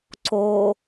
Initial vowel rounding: rounded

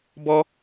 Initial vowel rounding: rounded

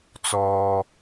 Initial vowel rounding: rounded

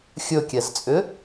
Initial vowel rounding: rounded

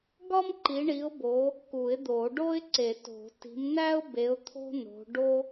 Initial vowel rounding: rounded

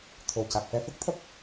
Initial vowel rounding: rounded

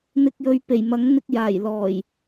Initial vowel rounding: unrounded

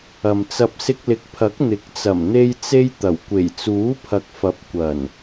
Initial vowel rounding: unrounded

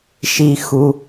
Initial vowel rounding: unrounded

